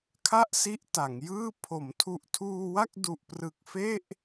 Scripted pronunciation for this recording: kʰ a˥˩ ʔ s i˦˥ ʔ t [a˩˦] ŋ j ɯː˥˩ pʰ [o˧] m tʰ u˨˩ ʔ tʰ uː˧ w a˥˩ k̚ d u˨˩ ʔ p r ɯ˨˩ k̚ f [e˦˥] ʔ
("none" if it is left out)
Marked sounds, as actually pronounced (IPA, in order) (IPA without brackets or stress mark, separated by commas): a˩˦, o˩˦, e˥˩